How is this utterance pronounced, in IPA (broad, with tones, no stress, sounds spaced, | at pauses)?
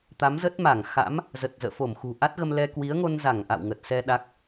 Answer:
t̪ a˨˦ m z ə˦˥ t̚ m a˧˩ ŋ x a̰˧˥ m | z ə˨˩ t̚ z ə̰ː˧˨ f o˧˩ m x ṳ˨˩ ʔ a˦˥ t̚ ɣ ə˧ m l ɛ˧ k w i˨˦ ə̯ ŋ o˧ n z a˧˩ ŋ ʔ a̰˧˨ w ŋ ə˨˩ t̚ s ɛ˧ ɗ a˦˥ k̚